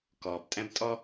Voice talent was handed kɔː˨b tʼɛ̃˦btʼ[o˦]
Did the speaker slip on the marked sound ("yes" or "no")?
yes